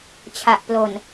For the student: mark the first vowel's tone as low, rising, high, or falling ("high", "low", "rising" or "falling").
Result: low